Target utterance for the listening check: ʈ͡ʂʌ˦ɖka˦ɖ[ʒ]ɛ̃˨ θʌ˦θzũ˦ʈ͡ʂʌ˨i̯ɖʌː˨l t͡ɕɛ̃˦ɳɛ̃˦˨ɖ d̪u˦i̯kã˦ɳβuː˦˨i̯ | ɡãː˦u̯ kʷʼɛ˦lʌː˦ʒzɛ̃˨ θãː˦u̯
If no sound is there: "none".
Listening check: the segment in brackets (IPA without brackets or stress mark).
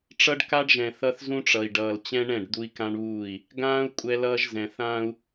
ʒ